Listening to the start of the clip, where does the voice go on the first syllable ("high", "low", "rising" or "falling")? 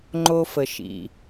low